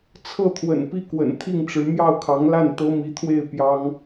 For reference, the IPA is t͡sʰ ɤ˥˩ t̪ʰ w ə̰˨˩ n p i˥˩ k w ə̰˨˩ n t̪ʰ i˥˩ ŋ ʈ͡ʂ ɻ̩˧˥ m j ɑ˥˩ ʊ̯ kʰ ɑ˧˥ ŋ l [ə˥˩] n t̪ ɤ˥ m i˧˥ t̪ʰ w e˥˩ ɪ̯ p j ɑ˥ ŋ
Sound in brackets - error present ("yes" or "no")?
yes